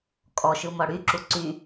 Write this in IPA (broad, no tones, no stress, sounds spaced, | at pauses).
kʼ ɔ ʃ ɯ m ɔ ɽ y ǁ u ǀ y